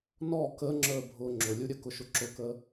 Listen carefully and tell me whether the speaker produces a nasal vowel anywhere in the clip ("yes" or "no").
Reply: no